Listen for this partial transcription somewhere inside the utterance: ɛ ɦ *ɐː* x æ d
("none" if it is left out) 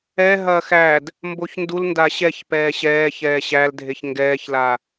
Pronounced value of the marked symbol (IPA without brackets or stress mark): ɐː